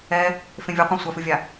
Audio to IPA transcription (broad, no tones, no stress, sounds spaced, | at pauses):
ɛ | f ẽ vʲ o qʷ ã sʷ a f ɨ vʲ a